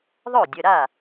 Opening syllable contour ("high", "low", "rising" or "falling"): falling